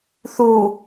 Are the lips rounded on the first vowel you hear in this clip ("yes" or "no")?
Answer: yes